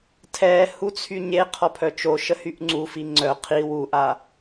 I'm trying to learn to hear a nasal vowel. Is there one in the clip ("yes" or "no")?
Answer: no